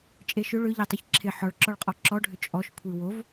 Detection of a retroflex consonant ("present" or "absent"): present